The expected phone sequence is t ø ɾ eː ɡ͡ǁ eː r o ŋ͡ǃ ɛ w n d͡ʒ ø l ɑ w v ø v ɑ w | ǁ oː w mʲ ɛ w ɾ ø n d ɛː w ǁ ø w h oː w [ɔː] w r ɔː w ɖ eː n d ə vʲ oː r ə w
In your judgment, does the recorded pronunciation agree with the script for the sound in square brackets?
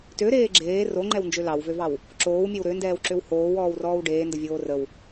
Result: yes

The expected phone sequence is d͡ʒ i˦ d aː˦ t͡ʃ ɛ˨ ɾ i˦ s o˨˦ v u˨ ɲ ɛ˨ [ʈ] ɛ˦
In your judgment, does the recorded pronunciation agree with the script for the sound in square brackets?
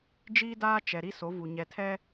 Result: no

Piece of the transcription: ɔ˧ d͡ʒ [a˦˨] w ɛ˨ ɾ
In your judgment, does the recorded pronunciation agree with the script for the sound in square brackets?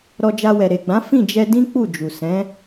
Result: no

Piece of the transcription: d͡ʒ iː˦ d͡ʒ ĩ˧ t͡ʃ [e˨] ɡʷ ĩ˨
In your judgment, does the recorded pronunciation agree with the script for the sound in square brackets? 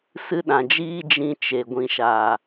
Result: yes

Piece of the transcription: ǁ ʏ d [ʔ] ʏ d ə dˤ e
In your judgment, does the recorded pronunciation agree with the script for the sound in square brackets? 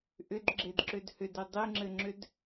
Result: no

